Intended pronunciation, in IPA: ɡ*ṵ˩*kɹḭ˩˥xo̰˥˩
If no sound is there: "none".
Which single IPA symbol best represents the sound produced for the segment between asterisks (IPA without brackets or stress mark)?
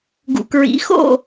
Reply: ṵ˩